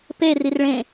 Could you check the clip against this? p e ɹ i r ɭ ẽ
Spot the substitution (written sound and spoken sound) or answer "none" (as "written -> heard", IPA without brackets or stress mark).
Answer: ɹ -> r